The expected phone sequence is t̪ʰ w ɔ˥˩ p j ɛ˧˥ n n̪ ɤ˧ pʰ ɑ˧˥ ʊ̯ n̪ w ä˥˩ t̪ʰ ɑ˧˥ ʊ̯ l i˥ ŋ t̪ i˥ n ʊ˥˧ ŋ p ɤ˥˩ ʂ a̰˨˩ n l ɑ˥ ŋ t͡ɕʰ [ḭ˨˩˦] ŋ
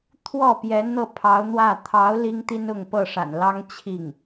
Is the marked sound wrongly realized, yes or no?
yes